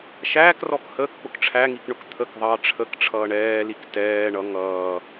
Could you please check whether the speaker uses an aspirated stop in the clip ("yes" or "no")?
yes